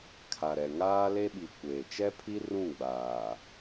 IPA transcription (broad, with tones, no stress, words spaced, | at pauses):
kʰa˨ɾɛ˨ ŋaː˦le˦ɓi˨ kʷeː˨ t͡ʃɛ˦pʰi˦ rũ˦˨ɡ͡baː˨